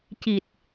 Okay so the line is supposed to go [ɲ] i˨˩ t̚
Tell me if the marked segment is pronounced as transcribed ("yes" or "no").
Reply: no